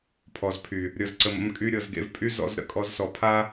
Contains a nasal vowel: no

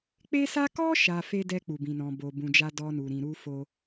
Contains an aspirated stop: no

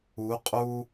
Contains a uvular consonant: yes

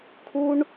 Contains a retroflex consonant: yes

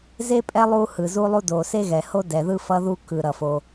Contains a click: no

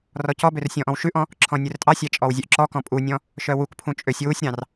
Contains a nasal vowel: yes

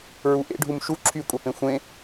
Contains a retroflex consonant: yes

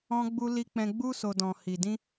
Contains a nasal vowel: yes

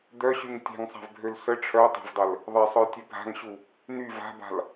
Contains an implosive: no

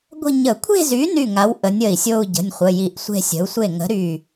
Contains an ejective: no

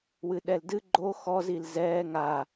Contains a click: yes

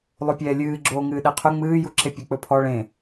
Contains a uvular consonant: yes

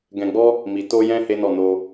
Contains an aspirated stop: no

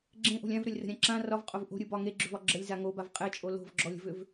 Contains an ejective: yes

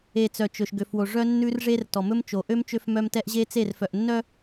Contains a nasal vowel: no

